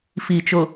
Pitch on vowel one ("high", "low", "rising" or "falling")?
low